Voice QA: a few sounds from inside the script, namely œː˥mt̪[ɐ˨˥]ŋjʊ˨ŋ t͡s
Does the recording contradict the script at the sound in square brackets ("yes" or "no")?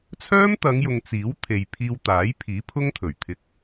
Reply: yes